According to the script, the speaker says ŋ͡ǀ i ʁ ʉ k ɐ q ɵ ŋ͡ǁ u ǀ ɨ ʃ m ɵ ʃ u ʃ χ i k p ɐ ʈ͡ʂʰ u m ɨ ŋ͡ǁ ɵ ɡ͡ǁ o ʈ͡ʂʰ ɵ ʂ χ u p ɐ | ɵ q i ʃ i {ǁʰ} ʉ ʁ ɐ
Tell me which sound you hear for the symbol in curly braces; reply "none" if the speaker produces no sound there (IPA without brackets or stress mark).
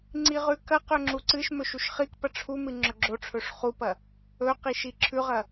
ǁʰ